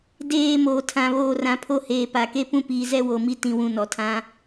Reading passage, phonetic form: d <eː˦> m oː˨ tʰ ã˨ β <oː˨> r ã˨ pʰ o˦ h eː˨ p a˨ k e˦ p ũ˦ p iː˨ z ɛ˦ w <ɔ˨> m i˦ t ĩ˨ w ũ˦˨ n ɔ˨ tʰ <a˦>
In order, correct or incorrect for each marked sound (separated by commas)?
incorrect, correct, incorrect, incorrect